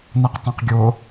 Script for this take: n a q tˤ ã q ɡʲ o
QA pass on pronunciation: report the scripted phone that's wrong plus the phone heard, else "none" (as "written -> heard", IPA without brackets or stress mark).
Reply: none